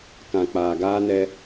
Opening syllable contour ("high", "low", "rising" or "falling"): low